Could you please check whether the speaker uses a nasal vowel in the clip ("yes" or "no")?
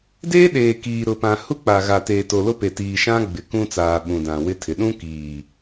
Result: yes